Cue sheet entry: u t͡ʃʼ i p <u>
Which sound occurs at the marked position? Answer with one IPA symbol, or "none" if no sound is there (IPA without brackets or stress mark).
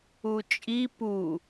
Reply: u